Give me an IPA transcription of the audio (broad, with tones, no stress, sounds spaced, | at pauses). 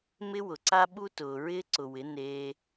m ɪ˦ w ʊ˨ ǀ a˦ ɓ u˦ t ʊː˨ ɹ ɪː˦ ǀ ʊ˨ w ɪ˨˦ n eː˧